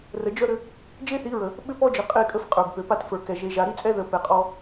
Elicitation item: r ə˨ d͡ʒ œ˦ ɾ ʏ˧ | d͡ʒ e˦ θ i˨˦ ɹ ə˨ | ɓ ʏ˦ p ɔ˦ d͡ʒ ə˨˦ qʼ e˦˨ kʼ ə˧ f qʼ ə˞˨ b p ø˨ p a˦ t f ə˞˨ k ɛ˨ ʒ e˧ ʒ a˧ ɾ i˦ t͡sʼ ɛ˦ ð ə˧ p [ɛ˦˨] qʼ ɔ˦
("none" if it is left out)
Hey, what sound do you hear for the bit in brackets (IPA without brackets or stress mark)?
ɛ˧